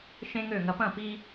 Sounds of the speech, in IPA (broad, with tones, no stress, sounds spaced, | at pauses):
ʃ ẽ˥ ŋ ø˥˩ ŋ ɐ˧ p ɐ̃˥˩ p i˧